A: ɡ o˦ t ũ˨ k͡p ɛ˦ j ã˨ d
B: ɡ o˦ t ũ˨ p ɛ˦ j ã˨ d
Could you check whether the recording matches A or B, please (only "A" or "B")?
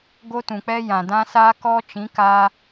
A